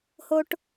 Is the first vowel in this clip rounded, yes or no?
yes